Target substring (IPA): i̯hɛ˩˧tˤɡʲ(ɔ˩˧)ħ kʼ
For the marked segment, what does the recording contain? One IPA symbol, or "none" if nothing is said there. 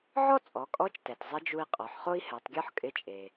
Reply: ɔ˥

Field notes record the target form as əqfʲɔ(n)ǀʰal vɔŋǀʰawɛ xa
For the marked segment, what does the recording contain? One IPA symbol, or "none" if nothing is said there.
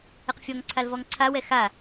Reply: ŋ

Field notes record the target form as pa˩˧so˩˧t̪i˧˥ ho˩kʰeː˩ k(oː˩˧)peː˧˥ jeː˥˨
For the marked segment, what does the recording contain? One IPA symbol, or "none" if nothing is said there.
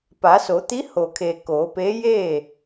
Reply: oː˩˧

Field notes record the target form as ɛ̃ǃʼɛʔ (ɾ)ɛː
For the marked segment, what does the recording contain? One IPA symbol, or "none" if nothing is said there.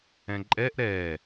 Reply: ɾ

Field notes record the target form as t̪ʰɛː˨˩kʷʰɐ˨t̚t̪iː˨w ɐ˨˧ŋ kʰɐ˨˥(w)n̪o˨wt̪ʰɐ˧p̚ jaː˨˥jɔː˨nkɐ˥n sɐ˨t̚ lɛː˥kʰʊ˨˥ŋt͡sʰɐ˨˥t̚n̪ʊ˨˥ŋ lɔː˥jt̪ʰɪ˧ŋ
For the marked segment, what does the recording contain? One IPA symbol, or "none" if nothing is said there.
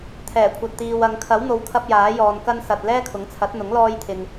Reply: w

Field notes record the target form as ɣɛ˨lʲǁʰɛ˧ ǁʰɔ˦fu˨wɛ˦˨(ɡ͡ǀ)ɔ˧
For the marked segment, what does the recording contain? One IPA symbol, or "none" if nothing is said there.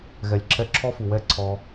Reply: ǀʰ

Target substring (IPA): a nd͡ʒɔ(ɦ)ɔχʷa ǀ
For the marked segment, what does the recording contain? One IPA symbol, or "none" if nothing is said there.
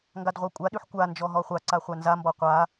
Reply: ɦ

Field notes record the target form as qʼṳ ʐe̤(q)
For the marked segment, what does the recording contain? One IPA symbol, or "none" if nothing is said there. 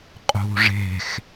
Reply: x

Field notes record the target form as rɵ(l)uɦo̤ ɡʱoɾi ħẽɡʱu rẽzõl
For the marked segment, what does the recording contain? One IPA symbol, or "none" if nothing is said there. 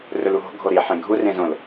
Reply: l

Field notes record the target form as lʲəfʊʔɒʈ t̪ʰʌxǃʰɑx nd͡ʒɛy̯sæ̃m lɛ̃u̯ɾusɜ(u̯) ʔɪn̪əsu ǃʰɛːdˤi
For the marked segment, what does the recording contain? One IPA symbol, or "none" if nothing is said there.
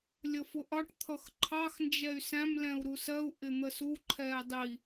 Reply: u̯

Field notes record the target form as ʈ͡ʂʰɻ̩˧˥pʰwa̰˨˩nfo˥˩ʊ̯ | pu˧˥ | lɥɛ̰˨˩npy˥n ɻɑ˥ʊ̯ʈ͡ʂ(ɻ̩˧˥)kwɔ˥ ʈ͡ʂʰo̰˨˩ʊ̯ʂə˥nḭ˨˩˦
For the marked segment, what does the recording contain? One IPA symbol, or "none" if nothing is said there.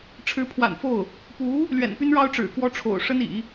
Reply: ɻ̩˨˩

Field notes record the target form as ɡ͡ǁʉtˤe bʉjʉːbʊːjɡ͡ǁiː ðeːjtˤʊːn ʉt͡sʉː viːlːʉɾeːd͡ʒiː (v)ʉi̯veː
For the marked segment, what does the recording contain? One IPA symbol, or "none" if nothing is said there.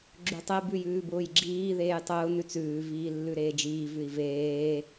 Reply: v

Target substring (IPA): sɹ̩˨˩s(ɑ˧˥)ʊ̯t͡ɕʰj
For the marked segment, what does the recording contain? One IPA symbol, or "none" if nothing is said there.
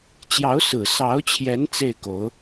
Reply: ɑ˧˥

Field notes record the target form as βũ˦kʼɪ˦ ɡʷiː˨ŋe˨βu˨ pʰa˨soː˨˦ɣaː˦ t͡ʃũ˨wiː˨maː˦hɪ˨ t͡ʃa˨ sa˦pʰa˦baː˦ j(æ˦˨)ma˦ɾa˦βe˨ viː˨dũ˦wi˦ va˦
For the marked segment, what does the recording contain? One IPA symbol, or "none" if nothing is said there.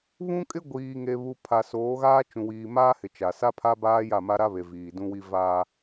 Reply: a˦˨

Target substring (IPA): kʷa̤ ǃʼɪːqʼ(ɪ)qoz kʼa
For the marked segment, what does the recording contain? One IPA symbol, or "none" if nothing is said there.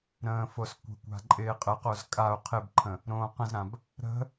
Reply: ə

